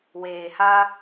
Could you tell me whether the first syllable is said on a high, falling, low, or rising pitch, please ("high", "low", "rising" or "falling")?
low